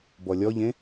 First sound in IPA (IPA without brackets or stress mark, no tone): b